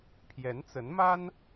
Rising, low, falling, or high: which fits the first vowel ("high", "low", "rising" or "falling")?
rising